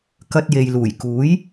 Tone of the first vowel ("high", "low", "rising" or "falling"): high